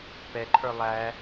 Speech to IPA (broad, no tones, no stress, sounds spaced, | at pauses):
p ɛ ǃʰ ə˞ lˠ æ